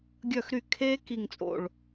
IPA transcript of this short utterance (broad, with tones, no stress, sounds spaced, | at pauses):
ɡʲ œ˧˩ x ɾ y˧˩ kʰ e˧ k i˧˩ ŋ t͡sʼ o̰˧˩ ɭ